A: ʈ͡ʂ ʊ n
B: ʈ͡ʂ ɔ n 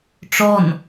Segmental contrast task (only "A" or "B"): B